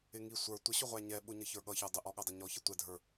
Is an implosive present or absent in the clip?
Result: present